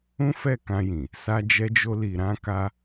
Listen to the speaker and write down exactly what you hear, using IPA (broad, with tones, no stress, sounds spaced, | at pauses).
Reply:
ũ˦ f ɛ˦˨ k ã˧ j ĩ˨ | s a˧ d͡ʒ ɛ˧ d͡ʒ o˧ l i˨ ɾ ã˧ k a˧